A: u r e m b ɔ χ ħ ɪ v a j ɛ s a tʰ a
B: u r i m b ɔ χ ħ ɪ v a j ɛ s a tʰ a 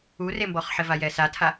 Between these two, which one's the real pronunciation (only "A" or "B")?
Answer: A